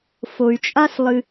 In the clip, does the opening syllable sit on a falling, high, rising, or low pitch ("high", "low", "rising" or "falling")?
low